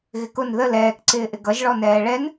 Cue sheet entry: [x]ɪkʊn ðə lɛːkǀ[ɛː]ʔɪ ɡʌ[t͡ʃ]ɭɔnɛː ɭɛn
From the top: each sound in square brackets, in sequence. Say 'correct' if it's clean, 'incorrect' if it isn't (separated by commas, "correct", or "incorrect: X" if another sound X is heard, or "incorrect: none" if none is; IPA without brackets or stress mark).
incorrect: ɣ, incorrect: ɪː, incorrect: ʒ